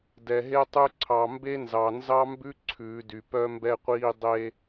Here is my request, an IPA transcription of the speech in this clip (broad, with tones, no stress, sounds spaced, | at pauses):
d ɛ˨ ɦ e˦ tˤ ʉ˦ ǀʰ ɑ˨ m b e˦ n z ɑ˨ n z ɑ˦ m b ʉ˦ ǀʰ ʉː˨˦ d y˨ p œ˦ m b ɛ˦ qʷ iː˦ dˤ e˦